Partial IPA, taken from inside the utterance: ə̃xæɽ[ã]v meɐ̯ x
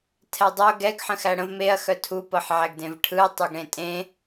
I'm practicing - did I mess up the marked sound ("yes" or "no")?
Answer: yes